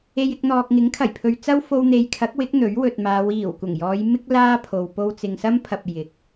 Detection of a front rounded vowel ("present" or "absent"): absent